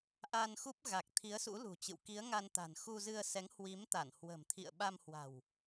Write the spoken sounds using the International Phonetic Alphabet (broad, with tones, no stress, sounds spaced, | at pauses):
ʔ a˧ n x u˦˥ p̚ ɣ a˨˩ k̚ t̪ʰ i˨˦ ə̯ s ṵ˧˥ l ṳ˨˩ t͡ɕ ɨ̰˧˨ w k i˨˦ ə̯ ŋ a˧ n t̪ a̤˨˩ n x u˧ z ɨ˧ ə̯ s ɛ˨˦ ŋ h w i˨˦ m t̪ a˧˩ n h w ə̤˨˩ m t̪ʰ ḭ˧˨ ə̯ ɓ a˧ m h w a̤˨˩ w